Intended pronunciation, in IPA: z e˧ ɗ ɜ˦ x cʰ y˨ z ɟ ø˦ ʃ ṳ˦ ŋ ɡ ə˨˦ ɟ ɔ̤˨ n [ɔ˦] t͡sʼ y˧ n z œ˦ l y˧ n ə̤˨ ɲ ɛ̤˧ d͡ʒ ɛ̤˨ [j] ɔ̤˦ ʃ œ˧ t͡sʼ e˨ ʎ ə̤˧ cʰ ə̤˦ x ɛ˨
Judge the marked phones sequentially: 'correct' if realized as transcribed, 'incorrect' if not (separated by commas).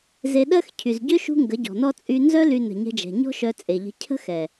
correct, incorrect